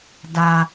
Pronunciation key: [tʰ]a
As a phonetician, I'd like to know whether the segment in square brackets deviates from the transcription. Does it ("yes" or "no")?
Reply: yes